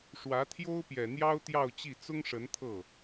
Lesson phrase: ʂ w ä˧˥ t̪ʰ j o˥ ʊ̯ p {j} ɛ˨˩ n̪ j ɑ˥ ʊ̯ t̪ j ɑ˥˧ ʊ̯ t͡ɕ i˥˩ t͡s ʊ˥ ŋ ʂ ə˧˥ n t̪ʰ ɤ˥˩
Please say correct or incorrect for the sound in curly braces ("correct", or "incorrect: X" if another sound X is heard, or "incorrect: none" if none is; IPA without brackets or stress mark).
correct